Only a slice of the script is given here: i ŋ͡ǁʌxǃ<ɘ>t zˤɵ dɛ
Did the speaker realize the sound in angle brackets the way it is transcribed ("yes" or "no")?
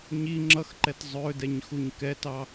no